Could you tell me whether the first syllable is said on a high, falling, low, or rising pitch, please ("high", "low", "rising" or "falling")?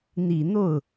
low